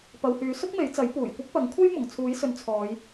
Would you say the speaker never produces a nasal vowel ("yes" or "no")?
yes